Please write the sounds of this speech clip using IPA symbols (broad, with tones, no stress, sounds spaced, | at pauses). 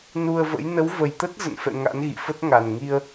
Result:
n u˧ ə̯ v ə̰˧˥ j n ə˨˦ w v ə˨˩ j t̪ ə˦˥ t̚ z ə̰˧˨ n f ɛ̰˧˨ ŋ a̰˧˥ n ɣ ḭ˧˨ f ə˦˥ t̚ ŋ a˨˩ n ŋ i˧ ə̯